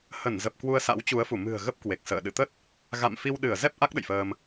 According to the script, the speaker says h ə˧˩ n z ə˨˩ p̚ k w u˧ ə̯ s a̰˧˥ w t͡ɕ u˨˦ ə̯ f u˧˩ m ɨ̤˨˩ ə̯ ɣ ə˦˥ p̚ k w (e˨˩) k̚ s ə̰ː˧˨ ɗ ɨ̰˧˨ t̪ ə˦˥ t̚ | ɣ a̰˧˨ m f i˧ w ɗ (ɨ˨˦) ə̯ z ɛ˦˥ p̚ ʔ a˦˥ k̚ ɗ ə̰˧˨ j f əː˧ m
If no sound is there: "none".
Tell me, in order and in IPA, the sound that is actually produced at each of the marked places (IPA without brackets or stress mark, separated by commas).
e˨˩, ɨ˧˩